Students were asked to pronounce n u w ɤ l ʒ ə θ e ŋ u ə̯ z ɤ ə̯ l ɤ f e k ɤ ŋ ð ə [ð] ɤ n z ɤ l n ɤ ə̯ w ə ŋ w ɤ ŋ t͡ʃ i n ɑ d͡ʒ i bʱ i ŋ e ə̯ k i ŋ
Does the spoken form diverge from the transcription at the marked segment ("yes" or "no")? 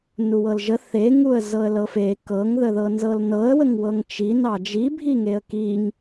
no